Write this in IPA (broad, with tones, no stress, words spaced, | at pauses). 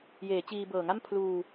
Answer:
jeː˩˦t͡ɕiː˧ bɤː˨˩ŋa˥˩m pʰluː˧